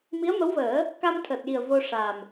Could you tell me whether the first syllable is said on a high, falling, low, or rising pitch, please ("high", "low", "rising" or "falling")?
rising